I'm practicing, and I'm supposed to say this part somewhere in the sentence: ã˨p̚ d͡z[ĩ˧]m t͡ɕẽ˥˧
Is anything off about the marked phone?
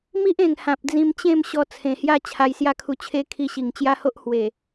no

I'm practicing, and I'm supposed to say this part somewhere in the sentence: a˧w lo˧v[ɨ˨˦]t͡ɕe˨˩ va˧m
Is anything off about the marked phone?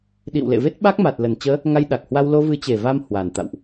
no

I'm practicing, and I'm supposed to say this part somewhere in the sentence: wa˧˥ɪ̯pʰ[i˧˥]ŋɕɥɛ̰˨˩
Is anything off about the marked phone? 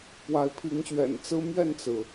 no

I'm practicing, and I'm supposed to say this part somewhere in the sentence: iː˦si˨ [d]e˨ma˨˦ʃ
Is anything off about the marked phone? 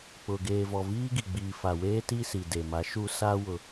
no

